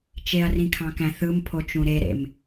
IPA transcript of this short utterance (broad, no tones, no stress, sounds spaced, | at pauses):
t͡ʃ e ɐ̯ r ĩ kʰ ɑ̃ k æ̃ θ ɯ m pʰ o t͡ʃ ũ ɾ e ɾ ḛ m